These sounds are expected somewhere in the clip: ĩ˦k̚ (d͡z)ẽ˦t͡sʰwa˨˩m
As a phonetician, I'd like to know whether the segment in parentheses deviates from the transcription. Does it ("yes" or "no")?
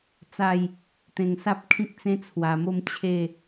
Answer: yes